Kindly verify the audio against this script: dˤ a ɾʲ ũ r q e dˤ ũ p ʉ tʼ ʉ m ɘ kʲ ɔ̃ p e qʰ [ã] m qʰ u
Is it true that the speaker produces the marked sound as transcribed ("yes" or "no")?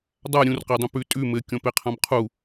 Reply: yes